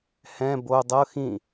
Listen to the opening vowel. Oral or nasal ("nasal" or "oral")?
nasal